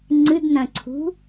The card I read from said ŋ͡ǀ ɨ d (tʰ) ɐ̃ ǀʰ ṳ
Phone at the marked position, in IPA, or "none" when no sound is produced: n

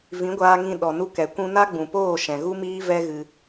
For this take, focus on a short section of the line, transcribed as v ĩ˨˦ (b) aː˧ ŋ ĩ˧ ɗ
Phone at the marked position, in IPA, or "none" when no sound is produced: ɡʷ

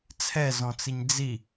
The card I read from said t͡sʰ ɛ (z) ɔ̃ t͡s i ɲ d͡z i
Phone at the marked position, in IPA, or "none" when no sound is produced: z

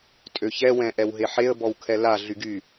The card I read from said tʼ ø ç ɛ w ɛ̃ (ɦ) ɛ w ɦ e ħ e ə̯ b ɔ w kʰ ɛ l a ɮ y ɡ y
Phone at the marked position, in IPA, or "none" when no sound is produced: ʔ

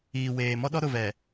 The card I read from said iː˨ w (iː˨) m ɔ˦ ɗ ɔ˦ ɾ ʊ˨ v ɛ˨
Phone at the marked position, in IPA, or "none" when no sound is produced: eː˨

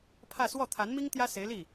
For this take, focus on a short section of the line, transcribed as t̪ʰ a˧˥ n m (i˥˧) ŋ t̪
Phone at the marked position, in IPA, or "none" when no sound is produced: i˥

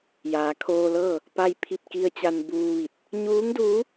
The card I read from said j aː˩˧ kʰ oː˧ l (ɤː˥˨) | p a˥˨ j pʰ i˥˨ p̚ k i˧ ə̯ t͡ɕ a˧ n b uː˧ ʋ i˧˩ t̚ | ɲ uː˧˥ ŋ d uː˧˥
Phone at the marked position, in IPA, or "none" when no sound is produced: ɤː˥˨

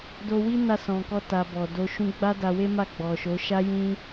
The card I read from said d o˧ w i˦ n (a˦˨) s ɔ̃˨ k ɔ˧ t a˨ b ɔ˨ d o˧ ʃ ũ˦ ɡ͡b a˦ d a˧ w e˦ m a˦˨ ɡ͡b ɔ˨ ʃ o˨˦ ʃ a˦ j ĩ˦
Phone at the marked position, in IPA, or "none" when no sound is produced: a˦˨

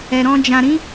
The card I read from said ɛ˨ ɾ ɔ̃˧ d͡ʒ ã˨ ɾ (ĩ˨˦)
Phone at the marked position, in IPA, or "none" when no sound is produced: ĩ˨˦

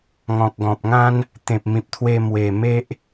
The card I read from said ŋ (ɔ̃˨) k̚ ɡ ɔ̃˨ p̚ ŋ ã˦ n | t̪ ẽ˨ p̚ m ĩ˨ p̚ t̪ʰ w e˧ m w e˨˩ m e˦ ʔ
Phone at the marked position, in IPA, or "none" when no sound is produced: ɔ̃˨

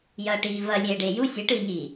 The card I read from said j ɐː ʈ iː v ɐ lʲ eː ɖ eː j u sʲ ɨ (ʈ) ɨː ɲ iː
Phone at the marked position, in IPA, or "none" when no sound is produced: ʈ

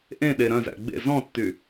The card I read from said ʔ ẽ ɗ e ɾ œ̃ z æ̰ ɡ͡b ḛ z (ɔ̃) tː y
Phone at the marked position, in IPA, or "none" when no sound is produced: ɔ̃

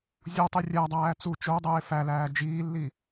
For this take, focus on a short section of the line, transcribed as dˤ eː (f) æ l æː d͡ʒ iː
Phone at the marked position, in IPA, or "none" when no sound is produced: f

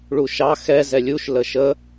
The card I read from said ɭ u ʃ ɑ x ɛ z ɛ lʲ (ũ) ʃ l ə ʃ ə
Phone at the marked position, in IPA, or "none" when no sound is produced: u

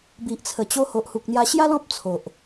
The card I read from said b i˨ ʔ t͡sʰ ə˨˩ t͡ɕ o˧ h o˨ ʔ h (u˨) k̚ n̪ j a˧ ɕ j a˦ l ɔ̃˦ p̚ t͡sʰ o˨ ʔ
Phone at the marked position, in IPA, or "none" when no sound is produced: u˨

